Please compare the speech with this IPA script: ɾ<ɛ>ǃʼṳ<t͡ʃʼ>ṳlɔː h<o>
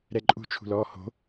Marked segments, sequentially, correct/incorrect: correct, incorrect, incorrect

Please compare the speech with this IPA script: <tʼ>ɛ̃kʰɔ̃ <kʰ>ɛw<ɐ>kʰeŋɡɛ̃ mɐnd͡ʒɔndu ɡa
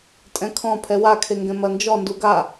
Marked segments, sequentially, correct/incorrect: correct, incorrect, incorrect

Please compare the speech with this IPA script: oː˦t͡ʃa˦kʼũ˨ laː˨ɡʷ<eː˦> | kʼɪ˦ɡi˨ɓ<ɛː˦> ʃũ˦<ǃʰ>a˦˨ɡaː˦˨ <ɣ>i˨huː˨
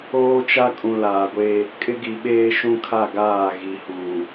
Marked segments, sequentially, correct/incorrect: correct, incorrect, incorrect, correct

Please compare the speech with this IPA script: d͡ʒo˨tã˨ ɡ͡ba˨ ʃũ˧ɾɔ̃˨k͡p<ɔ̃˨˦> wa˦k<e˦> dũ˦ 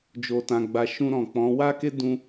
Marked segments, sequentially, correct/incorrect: correct, correct

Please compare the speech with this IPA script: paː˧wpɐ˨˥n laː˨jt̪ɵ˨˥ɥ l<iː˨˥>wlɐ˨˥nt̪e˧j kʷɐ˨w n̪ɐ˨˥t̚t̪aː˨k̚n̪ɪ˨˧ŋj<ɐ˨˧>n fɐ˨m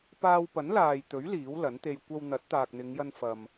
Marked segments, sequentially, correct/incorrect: correct, incorrect

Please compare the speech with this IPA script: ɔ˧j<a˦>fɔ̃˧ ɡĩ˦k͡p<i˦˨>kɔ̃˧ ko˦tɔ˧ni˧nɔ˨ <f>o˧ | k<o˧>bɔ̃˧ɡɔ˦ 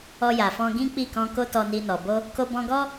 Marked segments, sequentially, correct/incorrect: incorrect, correct, incorrect, correct

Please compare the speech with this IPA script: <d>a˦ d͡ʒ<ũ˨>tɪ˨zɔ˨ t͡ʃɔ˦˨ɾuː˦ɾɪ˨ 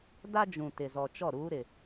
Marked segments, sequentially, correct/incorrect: correct, correct

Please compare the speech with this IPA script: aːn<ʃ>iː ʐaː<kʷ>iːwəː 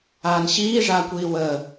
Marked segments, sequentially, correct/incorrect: incorrect, correct

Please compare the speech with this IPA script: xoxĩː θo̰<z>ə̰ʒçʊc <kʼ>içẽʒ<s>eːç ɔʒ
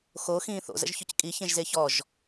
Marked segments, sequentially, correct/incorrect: correct, correct, incorrect

